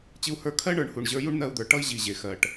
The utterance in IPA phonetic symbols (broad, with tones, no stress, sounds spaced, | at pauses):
t͡ɕ ɨ˦ u̯ h ə˞˦ kʰ ɜ˦ ɳ ə˞˨ ɳ h u˨ ɳ ʑ ə˞˧ j u˦ ɳ n̪ ɜ˧ u̯ d̪ ə˞˨ ʈ ʌ˦ i̯ ʑ i˨ ʑ e˨ x ɜ˨ ʈ